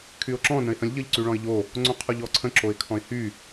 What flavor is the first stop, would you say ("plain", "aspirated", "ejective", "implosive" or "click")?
aspirated